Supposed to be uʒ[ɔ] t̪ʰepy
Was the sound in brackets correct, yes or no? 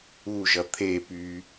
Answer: no